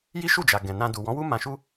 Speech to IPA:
ji˦ʃu˦˨d͡ʒa˨ ɡɛ̃˨nã˧ du˨wɔ̃˨˦wu˦ mã˧ʃu˦

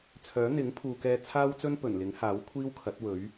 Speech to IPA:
t͡sʰœː˨˥ n̪ɪ˨˥ŋpʰuː˨kɛː˧ t͡sʰaː˥wt͡sɵ˥n pɵ˨˩nlɪ˨˥ŋhaː˨˥w kʷʰiː˥wkʰɐ˨˥t̚wɵ˨˥ɥ

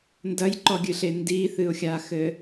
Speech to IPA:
ndɐjǃɔɡʲɨɬe ndiθɨʊ̯xʲaxɘ

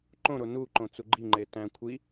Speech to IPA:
ǃõɾo nuǃõt͡su ɡ͡ǃiŋ͡ǃe tæ̃ kʷʰi

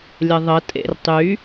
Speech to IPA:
lʲəðˤə tʼḛrtˤy

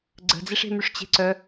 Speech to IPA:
ɡ͡ǀə̤d͡ziʂe̤myʂ t͡ɕe̤ǀœ

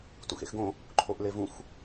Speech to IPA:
tṵxḛxɡõ | ǃʰoʔlevũx

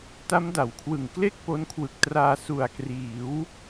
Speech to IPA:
ta˦˥mda˩˦wkʰwɯ˨˩ŋ kle˥˩k̚po˦˥nkʰwɯ˨˩k̚traː˧ su˨˩a̯kriː˩˦w

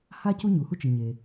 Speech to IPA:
ha˥ cu˥ɲu˩hu˥t͡ʃɯ˩ ɲe˩

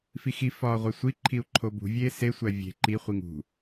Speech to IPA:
fixi fɒːʁʷesʷi ǃʰiu̯ǃʰobṳ vʲeːse sʷævʲe̤ ǃi χʷiŋṳ

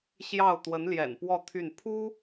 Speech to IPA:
ɕjɑ˥˩ʊ̯ t̪wə˧˥nljɛ̰˨˩npwɔ˥˧ t̪ʰy˥˩n pʰu˥

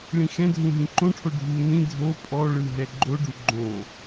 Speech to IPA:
ɭĩxɛ̃dʱũ ɦĩǃõʈʰo ɖʱu nĩ dʱo pʼɔɭɯ ɦɛɡ͡ǃoɖu ɡ͡ǃõ

